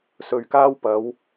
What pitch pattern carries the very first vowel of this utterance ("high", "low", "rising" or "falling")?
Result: low